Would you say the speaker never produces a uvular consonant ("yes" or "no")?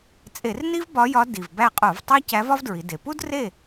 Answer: no